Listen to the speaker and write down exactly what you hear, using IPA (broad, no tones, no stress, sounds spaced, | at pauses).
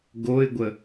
ɡ o ɪ̯ ɡʷ ə